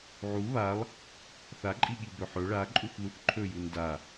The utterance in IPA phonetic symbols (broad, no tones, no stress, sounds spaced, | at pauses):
ʕ u β a lˠ | θ a ǃʼ i ɠ i b ɵ ħ ɵ ɭ a ǃʼ u θ ð u θ ǃʰ ɵ j u n d a